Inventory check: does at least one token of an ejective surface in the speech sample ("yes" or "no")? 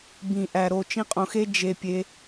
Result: yes